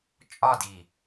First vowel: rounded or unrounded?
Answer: rounded